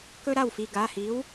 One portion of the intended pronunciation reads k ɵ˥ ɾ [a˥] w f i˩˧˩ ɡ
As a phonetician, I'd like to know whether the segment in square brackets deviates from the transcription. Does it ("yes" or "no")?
yes